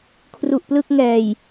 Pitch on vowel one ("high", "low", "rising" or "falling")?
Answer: low